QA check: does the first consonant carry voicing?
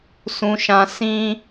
no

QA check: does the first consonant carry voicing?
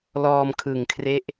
yes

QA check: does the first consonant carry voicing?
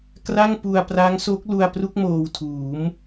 no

